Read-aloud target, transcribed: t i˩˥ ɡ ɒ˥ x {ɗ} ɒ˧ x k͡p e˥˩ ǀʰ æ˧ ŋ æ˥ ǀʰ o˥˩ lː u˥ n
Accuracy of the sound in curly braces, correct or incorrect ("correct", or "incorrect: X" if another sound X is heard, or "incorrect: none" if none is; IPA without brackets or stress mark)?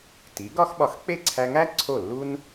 incorrect: ɓ